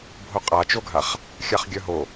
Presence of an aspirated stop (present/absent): absent